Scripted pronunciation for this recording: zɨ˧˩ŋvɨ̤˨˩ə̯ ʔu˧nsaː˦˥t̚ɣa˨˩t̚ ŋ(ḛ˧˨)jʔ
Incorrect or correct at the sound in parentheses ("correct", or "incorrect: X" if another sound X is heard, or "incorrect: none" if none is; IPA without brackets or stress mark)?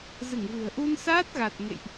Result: correct